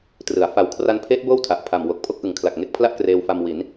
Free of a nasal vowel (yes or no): yes